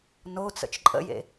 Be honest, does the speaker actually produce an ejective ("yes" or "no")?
yes